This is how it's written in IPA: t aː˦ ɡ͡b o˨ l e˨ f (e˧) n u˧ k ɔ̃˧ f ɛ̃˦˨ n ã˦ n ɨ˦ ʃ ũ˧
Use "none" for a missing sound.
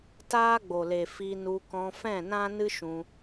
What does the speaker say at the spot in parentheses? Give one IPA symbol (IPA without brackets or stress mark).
i˧